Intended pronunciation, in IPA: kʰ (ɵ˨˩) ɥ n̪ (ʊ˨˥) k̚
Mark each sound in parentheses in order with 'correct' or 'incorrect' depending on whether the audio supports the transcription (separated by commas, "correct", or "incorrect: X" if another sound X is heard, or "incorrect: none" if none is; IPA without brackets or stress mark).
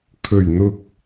correct, incorrect: ʊ˨